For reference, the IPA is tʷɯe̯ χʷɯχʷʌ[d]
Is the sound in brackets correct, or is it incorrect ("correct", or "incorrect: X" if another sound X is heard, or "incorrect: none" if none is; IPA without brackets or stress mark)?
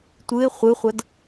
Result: correct